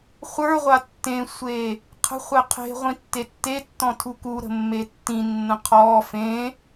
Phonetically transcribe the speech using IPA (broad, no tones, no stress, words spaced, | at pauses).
χʷə˞ʁʷa tːẽsʷeː | qʰə̤χʷe qʰe̤ ʁʷĩtːetːetːɔ̃ tʰukuɾə̤ mːetːĩnːə̃ qʰɔː fẽː